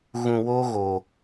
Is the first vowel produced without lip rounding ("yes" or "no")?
no